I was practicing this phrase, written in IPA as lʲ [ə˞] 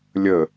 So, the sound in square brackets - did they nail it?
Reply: no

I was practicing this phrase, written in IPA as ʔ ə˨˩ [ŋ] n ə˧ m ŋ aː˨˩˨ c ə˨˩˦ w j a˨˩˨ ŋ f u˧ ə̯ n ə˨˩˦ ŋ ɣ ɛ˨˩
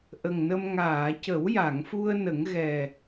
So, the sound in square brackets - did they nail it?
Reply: yes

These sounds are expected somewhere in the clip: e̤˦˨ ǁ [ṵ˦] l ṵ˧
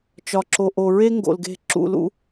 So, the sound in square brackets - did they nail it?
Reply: no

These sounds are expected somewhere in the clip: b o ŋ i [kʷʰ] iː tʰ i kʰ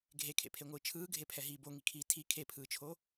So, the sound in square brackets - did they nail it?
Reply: no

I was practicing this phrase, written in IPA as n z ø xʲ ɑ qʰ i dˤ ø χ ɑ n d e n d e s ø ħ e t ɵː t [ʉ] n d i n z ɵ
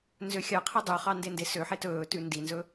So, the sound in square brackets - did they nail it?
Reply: yes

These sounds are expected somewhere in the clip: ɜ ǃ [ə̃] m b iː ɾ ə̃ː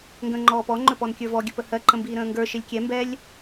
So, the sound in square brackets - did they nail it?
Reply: yes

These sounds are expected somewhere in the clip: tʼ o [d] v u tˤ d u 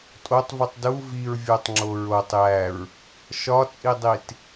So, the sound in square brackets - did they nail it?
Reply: no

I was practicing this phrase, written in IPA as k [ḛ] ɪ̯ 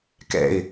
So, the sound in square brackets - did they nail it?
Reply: no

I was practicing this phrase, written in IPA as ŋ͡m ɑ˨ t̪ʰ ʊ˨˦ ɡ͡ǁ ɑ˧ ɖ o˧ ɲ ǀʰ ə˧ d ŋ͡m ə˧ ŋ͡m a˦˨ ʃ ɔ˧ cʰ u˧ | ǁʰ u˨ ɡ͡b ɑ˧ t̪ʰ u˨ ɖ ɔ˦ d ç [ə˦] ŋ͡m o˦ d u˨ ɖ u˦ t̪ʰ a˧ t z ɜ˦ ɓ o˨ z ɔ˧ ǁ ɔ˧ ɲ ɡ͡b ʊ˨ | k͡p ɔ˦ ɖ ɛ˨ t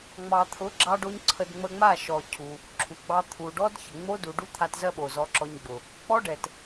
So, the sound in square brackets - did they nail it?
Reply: no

